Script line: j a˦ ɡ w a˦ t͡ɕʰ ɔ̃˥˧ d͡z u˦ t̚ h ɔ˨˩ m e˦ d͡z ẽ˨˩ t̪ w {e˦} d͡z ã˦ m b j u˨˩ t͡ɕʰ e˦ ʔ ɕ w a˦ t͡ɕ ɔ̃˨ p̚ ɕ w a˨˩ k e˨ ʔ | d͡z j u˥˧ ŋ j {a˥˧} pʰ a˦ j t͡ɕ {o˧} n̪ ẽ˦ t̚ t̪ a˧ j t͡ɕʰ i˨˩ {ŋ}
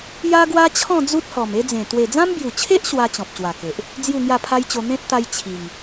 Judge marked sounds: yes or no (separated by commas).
no, yes, yes, yes